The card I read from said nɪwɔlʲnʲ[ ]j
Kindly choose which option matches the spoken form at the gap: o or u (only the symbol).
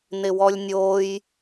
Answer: o